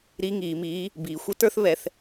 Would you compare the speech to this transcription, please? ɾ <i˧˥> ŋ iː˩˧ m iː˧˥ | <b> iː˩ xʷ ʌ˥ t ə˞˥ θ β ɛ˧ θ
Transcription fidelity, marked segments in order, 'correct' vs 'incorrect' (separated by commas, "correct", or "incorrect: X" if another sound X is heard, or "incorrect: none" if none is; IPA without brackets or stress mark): correct, correct